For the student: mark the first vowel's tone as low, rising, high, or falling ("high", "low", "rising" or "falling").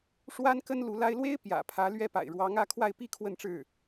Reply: high